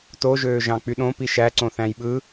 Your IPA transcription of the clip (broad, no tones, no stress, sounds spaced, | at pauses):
t o ʒ øː ʒ ɑ̃ k͡p y ɗ õ p i ʃ æ ǀ õ θ æ̃ j ɓ ɯ